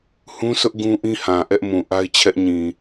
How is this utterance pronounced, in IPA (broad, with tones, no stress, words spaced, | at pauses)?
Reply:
hũ˦sʊ˦ʔ ɡũ˦ʔĩ˦hã˨ ʔɛ˦ʔmũ˨ ʔa˦ɪ̯t͡ɕʰɛ˦ʔɲĩ˨